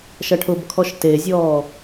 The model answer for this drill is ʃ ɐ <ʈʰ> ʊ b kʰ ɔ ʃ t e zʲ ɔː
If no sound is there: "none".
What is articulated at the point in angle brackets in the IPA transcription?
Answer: ʈʰ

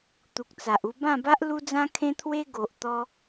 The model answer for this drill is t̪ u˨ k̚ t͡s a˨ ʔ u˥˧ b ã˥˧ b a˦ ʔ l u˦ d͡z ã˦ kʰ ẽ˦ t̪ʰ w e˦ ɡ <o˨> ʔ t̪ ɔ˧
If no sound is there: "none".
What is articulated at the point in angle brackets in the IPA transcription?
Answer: o˨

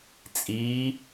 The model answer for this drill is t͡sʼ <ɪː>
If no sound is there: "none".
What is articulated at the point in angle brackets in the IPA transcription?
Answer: iː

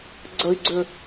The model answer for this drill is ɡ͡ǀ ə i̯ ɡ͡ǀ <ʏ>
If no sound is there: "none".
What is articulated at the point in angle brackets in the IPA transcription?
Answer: ʏ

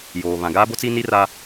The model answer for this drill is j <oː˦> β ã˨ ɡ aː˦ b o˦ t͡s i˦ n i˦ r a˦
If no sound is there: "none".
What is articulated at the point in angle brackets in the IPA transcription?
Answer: oː˨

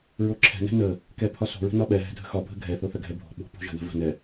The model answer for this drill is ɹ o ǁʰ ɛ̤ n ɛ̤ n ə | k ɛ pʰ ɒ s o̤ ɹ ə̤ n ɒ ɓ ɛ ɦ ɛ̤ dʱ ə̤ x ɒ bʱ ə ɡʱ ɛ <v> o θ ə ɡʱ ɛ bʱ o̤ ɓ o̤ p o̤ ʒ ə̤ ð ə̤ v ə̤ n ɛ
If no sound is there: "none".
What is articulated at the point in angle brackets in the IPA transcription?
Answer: θ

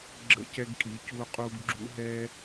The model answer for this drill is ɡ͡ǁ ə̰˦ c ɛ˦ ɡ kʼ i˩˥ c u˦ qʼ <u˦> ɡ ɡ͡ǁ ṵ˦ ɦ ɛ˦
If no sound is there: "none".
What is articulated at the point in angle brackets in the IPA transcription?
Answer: u˦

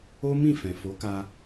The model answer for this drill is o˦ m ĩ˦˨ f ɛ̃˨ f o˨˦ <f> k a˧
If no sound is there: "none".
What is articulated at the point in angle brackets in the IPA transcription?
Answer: none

